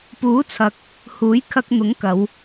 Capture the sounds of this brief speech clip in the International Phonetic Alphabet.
p uː˨˥ t͡sʰ ɐ˨ k̚ | h uː˨˥ j kʰ ɐ˧ k̚ n̪ ʊ˨˥ ŋ k ɐ˨˧ w

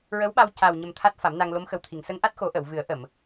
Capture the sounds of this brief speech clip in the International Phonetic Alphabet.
ɹ ə˧˥ w ɓ a˧ w c a˨˩ w ɲ ə˨˩ m t̪ʰ a˦˥ t̚ f a˨˩˦ m n a˧ ŋ l o˧˥ m x ə˨˩ w t̪ʰ i˨˩˨ ŋ s ə˧˥ ŋ ʔ a˦˥ t̚ x o˨˩˦ ʔ ə˨˩˨ w v ɨ˨˩˦ ə̯ ʔ ə˨˩˨ m

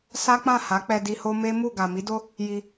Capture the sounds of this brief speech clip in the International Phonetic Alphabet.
s a˦ k͡p ã˦˨ h a˨˦ k͡p ɛ˧ d i˧ h o˦ m e˦ m u˦˨ ɡ a˨ m i˨˦ d o˦ | j i˧

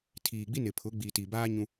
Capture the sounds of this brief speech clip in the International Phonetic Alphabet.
tʰ iː˨ ɡ͡b i˦ n ɪ˨ pʰ ʊ˨˦ ɡ͡b iː˨ t i˨ b aː˦ ɲ ũ˦

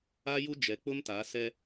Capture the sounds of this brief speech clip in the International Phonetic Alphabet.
a˦ j u˦ d͡ʒ ɛ˨ k͡p ʊ˦ m t a˨˦ s ɛ˦

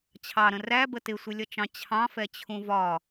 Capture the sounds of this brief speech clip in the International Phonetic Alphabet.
t͡ɕʰ ɑ ɾ ə̃ r æ b ə t ɪ sʷ ɪ lʲ ʌ t͡ʃ ɑ̃ t͡ɕʰ ɑ̃ f ɛ t͡ɕʰ ũ v ɒ

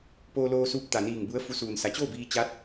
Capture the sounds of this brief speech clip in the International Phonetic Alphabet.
p oː˧ l oː˧ s uː˧ p̚ t̪ a˩ n iː˧˩ ŋ b u˧˥ ə̯ f u˧ s uː˩ n s a˩˧ t͡ɕ oː˥˨ b iː˧ t͡ɕ a˧˥ t̚

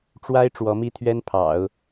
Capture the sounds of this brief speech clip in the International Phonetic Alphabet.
ʈ͡ʂ w a˥ ɪ̯ ʈ͡ʂ w ɔ˧˥ m i˥ t̪ʰ ɥ ɛ˥ n pʰ ɑ̰˨˩˦ ʊ̯

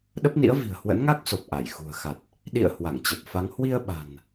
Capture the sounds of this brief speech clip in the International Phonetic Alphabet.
ɗ ə˦˥ p̚ n ḭ˧˥ ə̯ v i̤˨˩ ə̯ h w ə̰˧˥ n ŋ a˦˥ k̚ s o˨˩ p̚ ʔ a˧˩ j x ṳ˨˩ ə̯ x a˨˩ t̚ | ɗ ḭ˧˨ ə̯ h w a˧˩ ŋ t͡ɕ ə˨˩ p̚ f a˨˦ ŋ h w i˧ ə̯ ɓ a̤˨˩ n

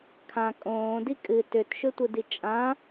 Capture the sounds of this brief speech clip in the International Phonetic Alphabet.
kʰ ã kʼ õː d i kʼ ɨ t ʏ t ʃ ʏ tʷ ɯ d i t͡ʃʼ ã

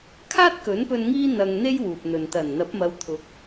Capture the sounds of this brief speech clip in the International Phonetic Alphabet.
kʰ aː˥ t̚ k ɵ˨˥ n p ɵ˧ n ŋ iː˥ n̪ ɐ˧ ŋ n̪ e˥ j w uː˨ p̚ n̪ ɵ˨ n t̪ ɐ˨˩ n n̪ ɐ˨˥ p̚ m ɐ˨˧ w t̪ʰ ʊ˨˥ k̚

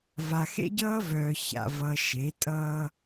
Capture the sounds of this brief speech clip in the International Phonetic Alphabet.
v a˨ x ḛ˦ ɟ ʌː˦ v œː˨ ç a̰˨ v ʌ˨ ʃ e˨˦ tʼ ʌː˦

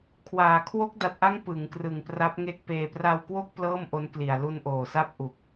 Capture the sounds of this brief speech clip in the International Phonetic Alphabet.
kʰ w aː˩˦ kʰ w o˦˥ k̚ d a˨˩ t̚ ʔ a˦˥ ŋ p ɯ˩˦ ŋ k r ɯ˨˩ ŋ p r a˦˥ p̚ ŋ e˦˥ k̚ p eː˧ p r a˧ w k w o˥˩ k̚ p l ɤː˥˩ m ʔ o˦˥ n k l i˨˩ a̯ l u˧ n ʔ oː˨˩ s a˥˩ p̚ ʔ u˨˩ k̚

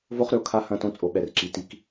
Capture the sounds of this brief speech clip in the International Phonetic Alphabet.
v o˦ χ ɾ ʏ˨ o̯ kʰ a˦ h ɐ̃˦˨ t õ˦ t͡sʼ o˨ ɓ ɛ˨ r ǁ i˨˦ t i˦ k

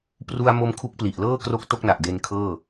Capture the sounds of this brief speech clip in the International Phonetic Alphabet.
p r u˧ a̯ m o˧ m kʰ u˦˥ k̚ p l i˨˩ ʔ l ɤː˥˩ k r o˦˥ k̚ t o˥˩ k̚ n a˨˩ ʔ d e˧ n kʰ ɤː˥˩

